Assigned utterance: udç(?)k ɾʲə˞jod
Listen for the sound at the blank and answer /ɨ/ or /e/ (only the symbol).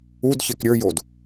e